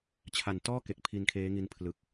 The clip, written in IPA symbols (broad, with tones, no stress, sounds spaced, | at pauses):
t͡ɕʰ a˨˩ n t ɔː˥˩ k e˨˩ k̚ pʰ i˧ n kʰ eː˦˥ ŋ i˧ n pʰ l ɯ˨˩ k̚